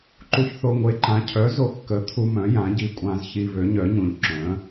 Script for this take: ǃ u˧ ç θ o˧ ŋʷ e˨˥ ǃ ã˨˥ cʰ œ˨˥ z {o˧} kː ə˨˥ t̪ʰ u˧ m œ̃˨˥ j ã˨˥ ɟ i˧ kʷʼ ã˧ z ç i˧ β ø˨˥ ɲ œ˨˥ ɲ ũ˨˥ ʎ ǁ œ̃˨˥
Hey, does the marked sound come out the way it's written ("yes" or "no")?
yes